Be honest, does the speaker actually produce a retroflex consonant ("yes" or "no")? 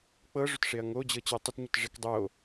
yes